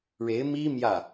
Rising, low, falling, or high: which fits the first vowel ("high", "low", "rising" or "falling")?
rising